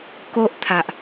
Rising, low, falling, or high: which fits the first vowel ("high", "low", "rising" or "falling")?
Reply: high